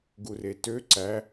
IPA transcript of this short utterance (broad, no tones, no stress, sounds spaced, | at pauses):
ɡ u r e t ø ǀ æ